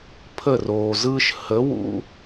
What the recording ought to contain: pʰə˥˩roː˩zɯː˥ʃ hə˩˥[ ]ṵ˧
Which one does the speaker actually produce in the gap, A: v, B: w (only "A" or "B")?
B